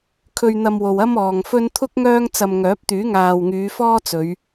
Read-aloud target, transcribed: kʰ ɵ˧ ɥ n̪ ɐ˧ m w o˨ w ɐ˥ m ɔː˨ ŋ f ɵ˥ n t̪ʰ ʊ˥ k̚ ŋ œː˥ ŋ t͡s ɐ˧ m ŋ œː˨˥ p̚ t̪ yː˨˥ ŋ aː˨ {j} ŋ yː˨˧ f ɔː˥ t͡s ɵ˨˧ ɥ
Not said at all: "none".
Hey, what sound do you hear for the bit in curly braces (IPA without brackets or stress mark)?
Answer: w